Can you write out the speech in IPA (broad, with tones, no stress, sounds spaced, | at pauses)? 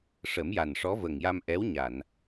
ʂ ə˨˩˦ m j a˨˩ n ʂ ɔ˧˥ v ə˨˩ ŋ j a˧ m ʔ ɛ˧˥ w ɲ a˨˩˨ n